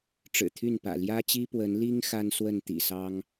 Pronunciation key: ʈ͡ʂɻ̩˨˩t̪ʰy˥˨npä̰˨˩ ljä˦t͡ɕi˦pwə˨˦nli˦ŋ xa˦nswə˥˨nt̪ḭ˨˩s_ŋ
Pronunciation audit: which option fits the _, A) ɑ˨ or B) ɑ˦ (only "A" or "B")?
B